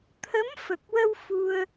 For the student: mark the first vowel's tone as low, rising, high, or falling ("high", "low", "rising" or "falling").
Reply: rising